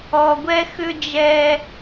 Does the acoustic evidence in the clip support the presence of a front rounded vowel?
yes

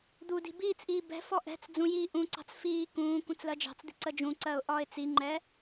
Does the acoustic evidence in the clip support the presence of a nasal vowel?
yes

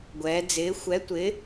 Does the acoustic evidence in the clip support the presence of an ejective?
no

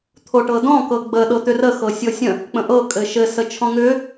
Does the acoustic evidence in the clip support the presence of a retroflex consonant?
yes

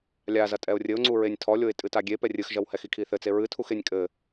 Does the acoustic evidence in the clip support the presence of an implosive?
no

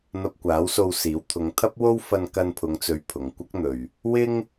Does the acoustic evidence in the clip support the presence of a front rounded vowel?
no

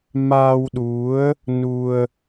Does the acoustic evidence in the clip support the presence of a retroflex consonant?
no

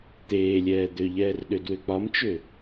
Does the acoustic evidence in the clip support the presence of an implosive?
yes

